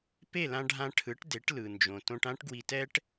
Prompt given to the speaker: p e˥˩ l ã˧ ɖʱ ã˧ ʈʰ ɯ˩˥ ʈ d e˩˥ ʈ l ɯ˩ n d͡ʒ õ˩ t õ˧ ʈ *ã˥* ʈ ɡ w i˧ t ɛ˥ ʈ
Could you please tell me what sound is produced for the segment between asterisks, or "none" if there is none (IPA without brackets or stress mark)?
ã˥